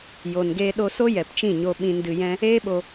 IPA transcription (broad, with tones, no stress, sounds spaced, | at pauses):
j o˨ n ɡ eː˧ ɗ o˧ s o˦ j ɛ˨ p t͡ʃ ĩ˦˨ ɲ o˧ ɓ ĩ˧ n d ɨ˧ j ɛ̃˦ | eː˦ ɓ o˧